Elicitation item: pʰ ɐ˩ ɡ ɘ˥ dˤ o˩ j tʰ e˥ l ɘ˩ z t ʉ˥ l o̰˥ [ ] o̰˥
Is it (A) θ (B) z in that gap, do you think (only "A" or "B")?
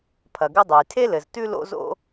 B